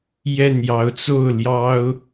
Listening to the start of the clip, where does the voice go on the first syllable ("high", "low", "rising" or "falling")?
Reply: falling